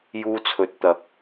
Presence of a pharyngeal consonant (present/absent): absent